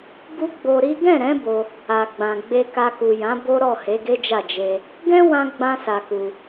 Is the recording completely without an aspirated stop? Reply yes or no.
yes